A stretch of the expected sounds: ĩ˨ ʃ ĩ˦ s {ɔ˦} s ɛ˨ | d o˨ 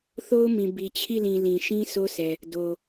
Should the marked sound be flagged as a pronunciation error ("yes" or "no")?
yes